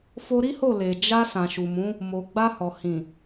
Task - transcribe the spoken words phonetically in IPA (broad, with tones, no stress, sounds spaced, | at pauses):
f o˧ ɾ i˦ h o˦˨ l e˨ d͡ʒ a˧ s ã˨ ʃ u˨ m ũ˨˦ | m o˨ ɡ͡b a˧ h ɔ˨ h ĩ˨